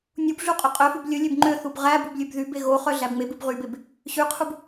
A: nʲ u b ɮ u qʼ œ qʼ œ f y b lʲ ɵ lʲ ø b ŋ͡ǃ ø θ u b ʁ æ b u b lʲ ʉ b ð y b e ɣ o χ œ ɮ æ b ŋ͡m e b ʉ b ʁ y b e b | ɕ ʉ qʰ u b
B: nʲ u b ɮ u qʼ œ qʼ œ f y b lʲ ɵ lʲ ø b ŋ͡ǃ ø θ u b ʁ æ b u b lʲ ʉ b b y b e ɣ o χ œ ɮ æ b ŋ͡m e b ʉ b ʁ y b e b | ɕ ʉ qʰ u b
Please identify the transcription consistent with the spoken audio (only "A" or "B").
A